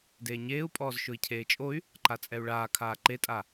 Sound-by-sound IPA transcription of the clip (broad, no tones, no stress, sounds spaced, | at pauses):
d eː ɲ eː u̯ pʼ ɔː z ʃ ʊ i̯ cʰ eː t͡ʃʼ o y̯ | ǃ a t͡sʼ ɛ u̯ ɭ aː kʰ aː ǃ e tʼ a